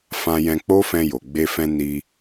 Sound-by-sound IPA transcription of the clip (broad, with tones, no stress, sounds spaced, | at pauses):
f ã˧ j ɛ̃˧ k͡p o˦ f ɛ̃˧ j o˨ ɡ͡b e˧ f ɛ̃˧ n i˧